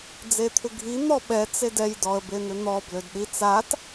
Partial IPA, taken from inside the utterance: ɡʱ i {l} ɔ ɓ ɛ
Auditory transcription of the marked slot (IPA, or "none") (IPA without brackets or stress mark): n̪